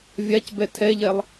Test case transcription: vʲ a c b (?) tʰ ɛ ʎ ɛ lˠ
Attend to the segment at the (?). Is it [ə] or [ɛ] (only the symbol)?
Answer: ɛ